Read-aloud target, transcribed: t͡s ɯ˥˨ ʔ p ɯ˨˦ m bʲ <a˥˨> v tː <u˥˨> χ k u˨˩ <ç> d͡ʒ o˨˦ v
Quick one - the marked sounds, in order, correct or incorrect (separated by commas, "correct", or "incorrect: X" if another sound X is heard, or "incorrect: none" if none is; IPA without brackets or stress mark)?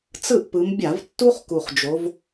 incorrect: a˧˩˧, incorrect: u˥, incorrect: χ